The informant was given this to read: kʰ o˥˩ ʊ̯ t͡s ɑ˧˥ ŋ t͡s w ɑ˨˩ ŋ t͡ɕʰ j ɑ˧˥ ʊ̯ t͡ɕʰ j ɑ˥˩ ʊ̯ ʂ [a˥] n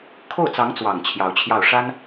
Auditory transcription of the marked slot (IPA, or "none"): a˥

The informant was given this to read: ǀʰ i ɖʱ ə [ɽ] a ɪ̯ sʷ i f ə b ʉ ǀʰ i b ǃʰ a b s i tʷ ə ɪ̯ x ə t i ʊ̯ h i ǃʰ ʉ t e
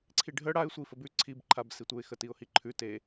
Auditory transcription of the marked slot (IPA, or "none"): ɽ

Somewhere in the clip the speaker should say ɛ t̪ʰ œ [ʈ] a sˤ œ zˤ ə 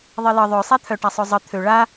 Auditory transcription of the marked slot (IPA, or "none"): ʈ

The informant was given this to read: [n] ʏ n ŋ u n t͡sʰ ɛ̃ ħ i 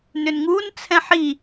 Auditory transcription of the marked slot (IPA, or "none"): n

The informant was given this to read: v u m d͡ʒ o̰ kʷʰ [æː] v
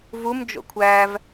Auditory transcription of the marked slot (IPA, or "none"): æː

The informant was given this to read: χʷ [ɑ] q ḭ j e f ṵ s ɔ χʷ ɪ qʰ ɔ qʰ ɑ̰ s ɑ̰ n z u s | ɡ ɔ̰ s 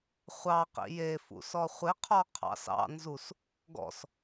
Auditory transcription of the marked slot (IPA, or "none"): ɑ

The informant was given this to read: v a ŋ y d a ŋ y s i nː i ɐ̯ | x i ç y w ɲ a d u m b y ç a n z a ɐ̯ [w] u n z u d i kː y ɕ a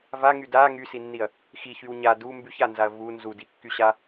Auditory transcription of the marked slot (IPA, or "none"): v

